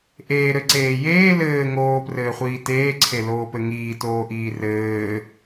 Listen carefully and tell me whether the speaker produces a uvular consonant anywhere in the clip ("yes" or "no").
yes